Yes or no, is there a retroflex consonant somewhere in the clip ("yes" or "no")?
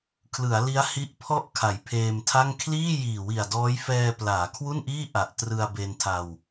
no